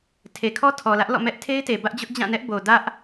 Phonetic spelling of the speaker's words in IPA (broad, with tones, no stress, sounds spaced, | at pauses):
tʰ e˨ kʰ ɔ˦ tʰ ɔ˨ l ä˦ ʔ l ɔ̰˦˨ m ɛ˦ ʔ tʰ e˦ ɪ̯ t e˨ b ä˦ ʔ d͡ʑ ʊ˦ ʔ d͡ʑ ã˦˨ n ɛ˦ ʔ b o˨ d ä˦ ʔ